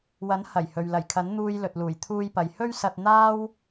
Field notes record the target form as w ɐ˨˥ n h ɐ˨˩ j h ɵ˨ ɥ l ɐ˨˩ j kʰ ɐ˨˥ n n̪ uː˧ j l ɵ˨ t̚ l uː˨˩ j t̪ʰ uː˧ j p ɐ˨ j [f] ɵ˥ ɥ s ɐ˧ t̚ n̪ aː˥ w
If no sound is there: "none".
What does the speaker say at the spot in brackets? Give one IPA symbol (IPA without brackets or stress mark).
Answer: h